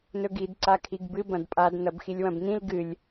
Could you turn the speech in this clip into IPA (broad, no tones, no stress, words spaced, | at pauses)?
nɵɡid ǀakʰiɡbɨ bɐ̃dpʼad nɐbxilʲwɐ̃bnĩl ɡɨlʲ